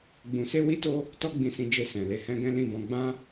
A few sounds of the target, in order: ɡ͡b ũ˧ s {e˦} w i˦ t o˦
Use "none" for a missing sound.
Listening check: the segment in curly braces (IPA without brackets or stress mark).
e˦